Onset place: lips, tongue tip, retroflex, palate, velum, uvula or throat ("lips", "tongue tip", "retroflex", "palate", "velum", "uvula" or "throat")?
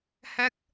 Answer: throat